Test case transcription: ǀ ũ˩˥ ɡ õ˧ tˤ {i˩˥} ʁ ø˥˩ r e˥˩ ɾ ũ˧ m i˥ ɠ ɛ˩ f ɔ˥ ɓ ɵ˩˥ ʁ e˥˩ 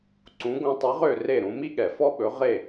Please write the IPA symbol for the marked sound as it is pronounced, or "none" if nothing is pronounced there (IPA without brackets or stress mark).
i˩˥